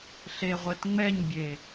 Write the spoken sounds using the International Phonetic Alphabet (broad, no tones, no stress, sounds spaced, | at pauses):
ɬ e ʁʷ e t ŋ͡m ɛ ɲ bʲ e